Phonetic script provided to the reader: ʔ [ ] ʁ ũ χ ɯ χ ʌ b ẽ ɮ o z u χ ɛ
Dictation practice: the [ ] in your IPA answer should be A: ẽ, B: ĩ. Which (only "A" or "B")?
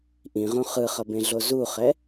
B